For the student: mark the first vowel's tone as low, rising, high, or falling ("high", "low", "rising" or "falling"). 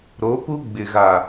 rising